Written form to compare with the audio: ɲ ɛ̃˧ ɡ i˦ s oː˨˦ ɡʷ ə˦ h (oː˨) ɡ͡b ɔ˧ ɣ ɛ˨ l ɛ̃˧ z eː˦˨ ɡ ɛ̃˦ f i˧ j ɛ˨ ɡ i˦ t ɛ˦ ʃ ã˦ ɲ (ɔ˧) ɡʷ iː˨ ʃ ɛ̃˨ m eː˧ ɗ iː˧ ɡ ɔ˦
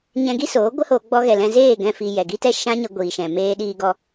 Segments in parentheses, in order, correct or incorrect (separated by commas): incorrect, incorrect